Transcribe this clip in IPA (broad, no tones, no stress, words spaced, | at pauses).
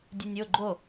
dʲɯnʲo ɡ͡ǃo